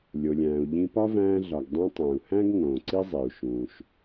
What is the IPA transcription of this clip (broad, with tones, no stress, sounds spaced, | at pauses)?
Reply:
lʲ o˩ lʲ æ̃ː˩ u̯ ʎ ĩ˧ p ɒ˥ v æ̃ː˧ ɮ ɒ˩ ɡ dˤ ũ˧ tˤ æ̃˩ u̯ h æ̃˥ ɡ ŋ õː˩ ǀ i˥ zˤ i˩ u̯ ʃ ũː˩ ʃ